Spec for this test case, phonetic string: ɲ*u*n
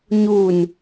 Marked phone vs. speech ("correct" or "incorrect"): correct